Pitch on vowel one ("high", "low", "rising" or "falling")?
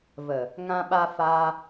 low